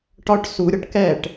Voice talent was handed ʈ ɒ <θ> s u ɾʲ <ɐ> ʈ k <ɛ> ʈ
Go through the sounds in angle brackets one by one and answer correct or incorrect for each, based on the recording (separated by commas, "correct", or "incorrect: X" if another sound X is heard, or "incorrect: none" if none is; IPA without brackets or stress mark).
incorrect: ʈ, correct, correct